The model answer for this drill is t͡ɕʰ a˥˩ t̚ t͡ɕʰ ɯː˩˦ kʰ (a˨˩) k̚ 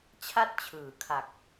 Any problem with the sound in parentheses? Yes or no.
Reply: no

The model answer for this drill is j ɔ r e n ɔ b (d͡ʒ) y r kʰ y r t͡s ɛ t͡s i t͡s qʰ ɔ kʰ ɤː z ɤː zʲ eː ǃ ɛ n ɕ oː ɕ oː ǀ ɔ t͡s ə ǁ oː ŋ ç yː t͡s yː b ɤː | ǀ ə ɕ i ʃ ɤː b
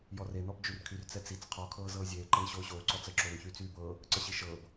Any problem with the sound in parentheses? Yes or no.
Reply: no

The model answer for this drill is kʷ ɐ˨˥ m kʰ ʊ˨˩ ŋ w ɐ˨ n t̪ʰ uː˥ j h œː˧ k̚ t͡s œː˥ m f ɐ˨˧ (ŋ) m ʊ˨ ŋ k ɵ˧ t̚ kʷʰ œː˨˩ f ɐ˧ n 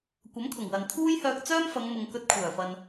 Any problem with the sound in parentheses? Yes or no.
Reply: no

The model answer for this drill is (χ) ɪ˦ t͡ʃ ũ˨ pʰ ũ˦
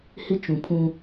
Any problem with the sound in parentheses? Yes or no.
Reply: yes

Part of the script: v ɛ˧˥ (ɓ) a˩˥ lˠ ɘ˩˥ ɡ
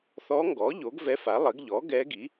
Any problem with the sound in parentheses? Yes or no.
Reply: yes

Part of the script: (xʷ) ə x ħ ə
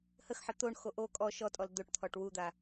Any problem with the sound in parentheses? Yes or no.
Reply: yes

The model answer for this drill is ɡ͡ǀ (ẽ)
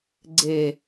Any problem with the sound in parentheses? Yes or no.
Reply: yes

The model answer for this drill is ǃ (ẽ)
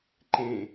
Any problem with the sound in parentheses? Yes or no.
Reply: no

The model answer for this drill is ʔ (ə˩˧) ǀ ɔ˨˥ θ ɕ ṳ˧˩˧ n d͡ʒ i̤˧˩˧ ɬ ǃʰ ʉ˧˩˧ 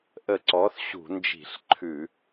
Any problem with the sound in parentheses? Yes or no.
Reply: yes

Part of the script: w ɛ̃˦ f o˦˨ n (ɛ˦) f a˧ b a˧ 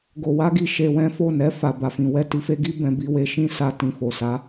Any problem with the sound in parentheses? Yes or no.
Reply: yes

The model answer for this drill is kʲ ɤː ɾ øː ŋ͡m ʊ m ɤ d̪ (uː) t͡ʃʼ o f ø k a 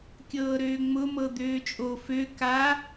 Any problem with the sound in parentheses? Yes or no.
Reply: yes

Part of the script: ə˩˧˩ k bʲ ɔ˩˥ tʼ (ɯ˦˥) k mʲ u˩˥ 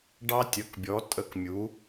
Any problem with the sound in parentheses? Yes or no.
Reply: yes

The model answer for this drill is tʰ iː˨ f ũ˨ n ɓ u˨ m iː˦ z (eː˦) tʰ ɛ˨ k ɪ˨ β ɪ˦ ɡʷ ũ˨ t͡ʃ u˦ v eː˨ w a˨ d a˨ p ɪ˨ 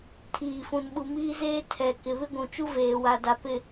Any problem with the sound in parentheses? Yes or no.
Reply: no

